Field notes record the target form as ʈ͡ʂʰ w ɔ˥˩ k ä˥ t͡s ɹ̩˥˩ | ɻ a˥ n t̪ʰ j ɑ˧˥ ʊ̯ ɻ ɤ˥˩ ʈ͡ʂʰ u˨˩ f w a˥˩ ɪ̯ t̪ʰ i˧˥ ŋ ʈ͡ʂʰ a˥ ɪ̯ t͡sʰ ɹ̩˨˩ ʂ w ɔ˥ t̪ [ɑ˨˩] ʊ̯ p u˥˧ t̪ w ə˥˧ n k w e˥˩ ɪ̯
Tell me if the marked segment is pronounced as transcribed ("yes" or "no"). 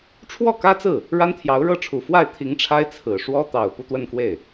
yes